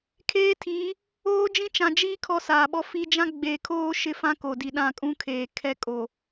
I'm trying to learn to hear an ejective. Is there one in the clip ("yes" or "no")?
yes